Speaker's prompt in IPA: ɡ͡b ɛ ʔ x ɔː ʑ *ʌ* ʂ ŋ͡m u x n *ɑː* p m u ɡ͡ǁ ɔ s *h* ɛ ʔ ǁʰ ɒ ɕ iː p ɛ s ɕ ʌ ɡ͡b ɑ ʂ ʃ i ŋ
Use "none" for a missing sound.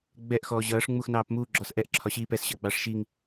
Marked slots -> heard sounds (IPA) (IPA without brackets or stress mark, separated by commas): ʌː, ɑː, ʔ